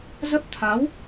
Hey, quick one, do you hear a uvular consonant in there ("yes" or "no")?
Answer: no